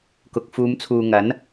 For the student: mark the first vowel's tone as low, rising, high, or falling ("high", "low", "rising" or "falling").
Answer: low